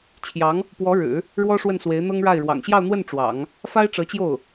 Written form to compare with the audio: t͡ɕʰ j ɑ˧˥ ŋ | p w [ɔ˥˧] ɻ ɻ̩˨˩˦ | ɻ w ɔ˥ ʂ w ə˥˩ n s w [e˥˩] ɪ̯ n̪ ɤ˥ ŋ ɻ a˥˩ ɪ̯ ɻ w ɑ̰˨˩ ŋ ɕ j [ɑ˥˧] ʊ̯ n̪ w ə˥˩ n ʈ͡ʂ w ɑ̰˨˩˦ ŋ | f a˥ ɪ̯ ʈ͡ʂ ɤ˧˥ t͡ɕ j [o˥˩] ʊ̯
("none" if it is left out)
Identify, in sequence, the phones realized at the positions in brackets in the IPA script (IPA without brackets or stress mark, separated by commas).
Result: ɔ˧˥, e˧˥, ɑ˥˧, o˥˩